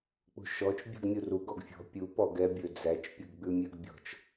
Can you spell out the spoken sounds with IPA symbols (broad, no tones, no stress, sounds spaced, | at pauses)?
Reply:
k͡p ṳ ʃ ɔ t͡ʃ bʲ ṳ ɡ mʲ u r u ɡ ɔ ɡ fʲ ɔ̤ pʲ u p ɔ ɡ ɛ bʲ ɵ d͡z æ t͡ʃ pʲ u ɡ ɡ͡b ʉ mʲ ʉ ɡ bʲ ɔ̤ t͡ʃ